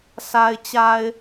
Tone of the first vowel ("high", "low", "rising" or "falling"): low